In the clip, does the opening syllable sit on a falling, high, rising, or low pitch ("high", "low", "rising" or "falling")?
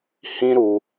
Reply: high